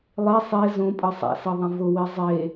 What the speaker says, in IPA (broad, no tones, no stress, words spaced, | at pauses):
lˠe sˤe zõ pʼɤsˤa̰sɤðˤẽ vʊwe zˤe